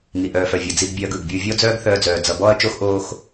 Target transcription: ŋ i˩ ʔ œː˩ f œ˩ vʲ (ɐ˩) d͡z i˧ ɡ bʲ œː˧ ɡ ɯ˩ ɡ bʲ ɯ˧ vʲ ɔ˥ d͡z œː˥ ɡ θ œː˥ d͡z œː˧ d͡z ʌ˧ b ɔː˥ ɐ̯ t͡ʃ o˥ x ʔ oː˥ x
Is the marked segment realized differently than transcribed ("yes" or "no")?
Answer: no